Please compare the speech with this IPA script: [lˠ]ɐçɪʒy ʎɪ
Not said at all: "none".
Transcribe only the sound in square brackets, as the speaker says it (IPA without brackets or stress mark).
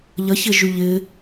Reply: ʎ